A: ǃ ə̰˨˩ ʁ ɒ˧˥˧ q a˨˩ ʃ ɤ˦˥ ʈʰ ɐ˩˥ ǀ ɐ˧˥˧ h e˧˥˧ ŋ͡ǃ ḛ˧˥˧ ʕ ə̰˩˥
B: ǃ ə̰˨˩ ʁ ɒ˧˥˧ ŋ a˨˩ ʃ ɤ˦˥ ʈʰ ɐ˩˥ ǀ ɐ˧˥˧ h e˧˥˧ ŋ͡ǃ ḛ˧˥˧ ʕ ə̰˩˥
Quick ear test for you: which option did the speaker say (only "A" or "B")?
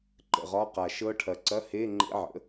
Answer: A